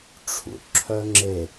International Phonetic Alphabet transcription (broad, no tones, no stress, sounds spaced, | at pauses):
ʈ͡ʂʰ ṵ ʈ ǁʰ œ ŋ͡ǁ e